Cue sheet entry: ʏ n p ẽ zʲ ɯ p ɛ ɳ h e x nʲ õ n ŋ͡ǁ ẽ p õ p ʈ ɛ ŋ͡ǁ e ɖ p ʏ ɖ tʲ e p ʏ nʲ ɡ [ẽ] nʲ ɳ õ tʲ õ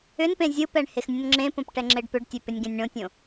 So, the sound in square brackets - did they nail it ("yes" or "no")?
yes